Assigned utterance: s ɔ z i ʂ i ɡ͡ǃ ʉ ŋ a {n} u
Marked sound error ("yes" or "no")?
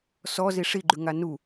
no